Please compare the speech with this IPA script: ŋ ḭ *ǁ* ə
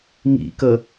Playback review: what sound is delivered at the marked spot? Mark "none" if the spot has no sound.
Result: k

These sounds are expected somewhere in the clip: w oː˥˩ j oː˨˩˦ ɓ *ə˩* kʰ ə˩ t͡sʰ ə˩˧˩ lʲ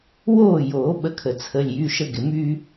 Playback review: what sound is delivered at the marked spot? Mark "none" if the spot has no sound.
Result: ə˧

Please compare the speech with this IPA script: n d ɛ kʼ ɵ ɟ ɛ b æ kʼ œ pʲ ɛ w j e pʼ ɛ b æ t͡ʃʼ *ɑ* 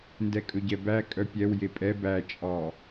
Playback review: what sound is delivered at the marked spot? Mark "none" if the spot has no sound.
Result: ɑ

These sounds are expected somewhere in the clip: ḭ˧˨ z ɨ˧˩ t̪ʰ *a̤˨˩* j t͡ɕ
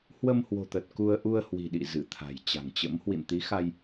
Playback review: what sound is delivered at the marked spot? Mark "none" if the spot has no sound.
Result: a̤˨˩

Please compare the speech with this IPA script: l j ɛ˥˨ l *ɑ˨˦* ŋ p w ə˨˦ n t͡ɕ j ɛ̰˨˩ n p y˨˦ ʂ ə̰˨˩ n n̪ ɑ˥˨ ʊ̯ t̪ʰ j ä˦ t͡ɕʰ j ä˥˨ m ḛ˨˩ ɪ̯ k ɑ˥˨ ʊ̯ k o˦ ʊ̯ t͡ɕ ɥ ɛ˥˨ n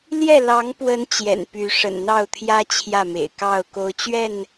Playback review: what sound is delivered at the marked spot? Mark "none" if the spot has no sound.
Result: ɑ˨˦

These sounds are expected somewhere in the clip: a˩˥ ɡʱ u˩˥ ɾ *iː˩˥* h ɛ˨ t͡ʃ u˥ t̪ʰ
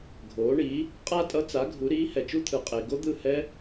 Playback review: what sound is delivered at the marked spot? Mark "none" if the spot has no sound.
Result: iː˧˥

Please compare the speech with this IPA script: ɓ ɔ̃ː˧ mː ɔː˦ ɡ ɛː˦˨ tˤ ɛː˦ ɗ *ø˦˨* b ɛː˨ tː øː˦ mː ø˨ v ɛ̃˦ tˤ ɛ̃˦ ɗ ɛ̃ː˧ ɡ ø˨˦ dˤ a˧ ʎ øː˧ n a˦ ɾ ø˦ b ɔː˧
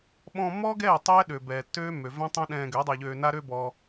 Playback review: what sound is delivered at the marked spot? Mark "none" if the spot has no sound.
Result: ø˨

